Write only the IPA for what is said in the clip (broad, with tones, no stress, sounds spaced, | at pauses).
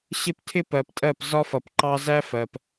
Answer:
ɕ ɪ˦ p tʰ ɪ˦ p ɜ˨ p tʼ ɜ˦˨ p z ɒ˦ f ʌ˨ p ǃ ɑ˦ z æ˦ f ɜ˨ p